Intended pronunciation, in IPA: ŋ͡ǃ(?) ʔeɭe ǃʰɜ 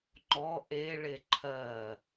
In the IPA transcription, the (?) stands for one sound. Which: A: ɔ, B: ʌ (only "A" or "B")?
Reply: A